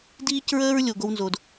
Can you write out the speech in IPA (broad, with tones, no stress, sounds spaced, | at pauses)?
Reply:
d iː˦ c ɹ əː˦ ɹ lʲ o˨ ɡ o˦ w n z o˨ d